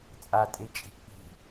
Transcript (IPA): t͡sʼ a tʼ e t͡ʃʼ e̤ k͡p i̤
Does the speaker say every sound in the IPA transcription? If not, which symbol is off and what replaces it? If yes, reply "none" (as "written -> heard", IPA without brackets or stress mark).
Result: e̤ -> i̤